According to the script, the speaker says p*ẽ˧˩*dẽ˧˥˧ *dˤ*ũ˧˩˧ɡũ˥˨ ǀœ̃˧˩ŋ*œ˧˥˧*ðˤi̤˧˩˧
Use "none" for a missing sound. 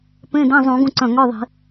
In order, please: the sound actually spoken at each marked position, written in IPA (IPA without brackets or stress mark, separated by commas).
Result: ẽ˧˥˧, zˤ, œ˧˥˧